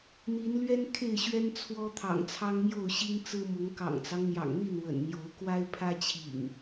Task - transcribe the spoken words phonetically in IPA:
n̪ i˨˦ n l ɥ ɛ˦ n kʰ e˥˨ ɪ̯ ɕ ɥ ɛ˦ n t͡sʰ w ɔ˦ t̪ʰ ɑ̰˨˩ ŋ t͡sʰ ɑ˦ ŋ m j o˥˨ ʊ̯ ɕ i˦ ŋ t͡s ɹ̩˦ m ʊ˨˦ ŋ k ɑ̰˨˩ ŋ t͡s ɑ˦ ŋ n̪ j ɑ̰˨˩ ŋ n̪ i˥˨ n w ə̰˨˩ n n̪ j o˨˦ ʊ̯ k w a˦ ɪ̯ pʰ ä˦ t͡ɕʰ ḭ˨˩ ŋ

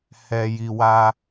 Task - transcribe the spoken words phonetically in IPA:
h ɛ˨ j i˨ w a˧

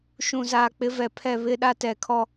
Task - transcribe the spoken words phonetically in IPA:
ʃ ũ˨ z aː˨ k͡p ɪ˨˦ v ɛ˨ pʰ ɛ˦˨ β ɪ˦ ɗ a˦ t ɛ˨ kʰ ɔ˦

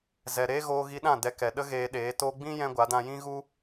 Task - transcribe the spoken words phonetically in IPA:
z ɛ˨ ɾ eː˦ ɣ oː˧ ɣ i˧ ɗ ã˦˨ d ɛ˧ k ɛ˨ ɗ ə˦ ɣ eː˧ ɗ eː˨˦ t oː˧ ɡ͡b ĩ˦ j ɛ̃˦ ɡʷ a˨˦ d ã˧ j ĩ˦ ɣ u˦

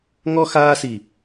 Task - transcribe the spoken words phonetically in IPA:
ŋ ɔ˧ x aː˧ s i˨˩

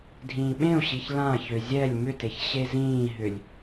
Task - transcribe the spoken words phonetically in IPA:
dʱ ĩː ɓ ẽ u̯ ɕ i ç l ã ç ø zʲ ɛ lʲ m ʏ t e ç ɕ e z ĩː ɦ ʏ lʲ

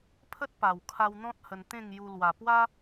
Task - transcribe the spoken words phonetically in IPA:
pʰ ə˦ t̚ p a˨˩ w kʰ a˧ w n̪ ɔ̃˦ t̚ h ə˧ n t̪ ẽ˥˧ ŋ j u˧ l w a˨˩ p w a˦

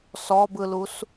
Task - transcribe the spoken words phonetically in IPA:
s ɔ b ɯ l u s

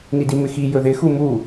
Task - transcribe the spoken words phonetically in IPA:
n i d i m ɪ x i j ɵ ð ɪ x u m u

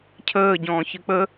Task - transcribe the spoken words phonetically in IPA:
cʰ əː ɟ ɔ̃ː ç ɨ k͡p ə

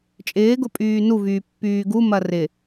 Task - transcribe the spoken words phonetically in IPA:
t͡ʃʼ ɪː ɡ ʊ pʼ yː n u v yː pː yː ɡ u m ɐ r ɪ

